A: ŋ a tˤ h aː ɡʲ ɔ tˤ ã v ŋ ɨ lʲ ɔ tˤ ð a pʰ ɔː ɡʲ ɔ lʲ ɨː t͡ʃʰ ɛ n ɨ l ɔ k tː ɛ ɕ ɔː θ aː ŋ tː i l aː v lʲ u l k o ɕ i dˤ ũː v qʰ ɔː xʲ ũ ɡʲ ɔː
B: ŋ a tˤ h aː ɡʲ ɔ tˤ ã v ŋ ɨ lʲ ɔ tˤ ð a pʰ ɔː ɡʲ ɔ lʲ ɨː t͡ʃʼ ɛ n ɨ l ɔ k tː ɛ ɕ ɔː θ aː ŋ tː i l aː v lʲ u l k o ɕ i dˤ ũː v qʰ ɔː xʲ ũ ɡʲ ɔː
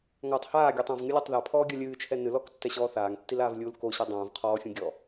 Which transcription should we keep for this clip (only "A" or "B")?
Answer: A